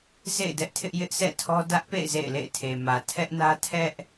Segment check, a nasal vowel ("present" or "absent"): absent